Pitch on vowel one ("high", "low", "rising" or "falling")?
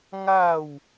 falling